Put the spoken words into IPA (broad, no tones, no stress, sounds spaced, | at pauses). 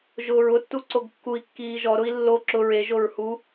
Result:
ʒ ʊː ɹ ʊ tː u ǀ o ɡ kː u i̯ kː iː ʒ ɔ ɾ ʊ i̯ lː o ǁ ʊ ɹ e ʒ o ɹ h u